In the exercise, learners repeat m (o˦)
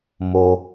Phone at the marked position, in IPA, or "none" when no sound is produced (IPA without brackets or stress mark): o˦